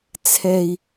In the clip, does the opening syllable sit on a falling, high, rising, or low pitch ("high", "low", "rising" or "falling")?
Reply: low